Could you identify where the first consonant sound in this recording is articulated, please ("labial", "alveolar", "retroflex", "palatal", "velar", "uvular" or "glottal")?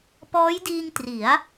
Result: labial